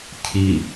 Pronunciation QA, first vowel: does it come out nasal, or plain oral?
oral